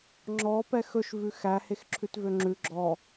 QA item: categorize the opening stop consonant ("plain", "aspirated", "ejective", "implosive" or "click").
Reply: click